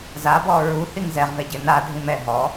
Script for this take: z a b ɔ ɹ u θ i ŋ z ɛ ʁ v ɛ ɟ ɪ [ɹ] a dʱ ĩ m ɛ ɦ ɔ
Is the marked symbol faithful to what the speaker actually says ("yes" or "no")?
no